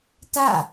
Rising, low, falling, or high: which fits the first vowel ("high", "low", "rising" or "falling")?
falling